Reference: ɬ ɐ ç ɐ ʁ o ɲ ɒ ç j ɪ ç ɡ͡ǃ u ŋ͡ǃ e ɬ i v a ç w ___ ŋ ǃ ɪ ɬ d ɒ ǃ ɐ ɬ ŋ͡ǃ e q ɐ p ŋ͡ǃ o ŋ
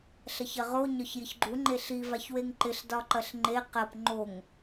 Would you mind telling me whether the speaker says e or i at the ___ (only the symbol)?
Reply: e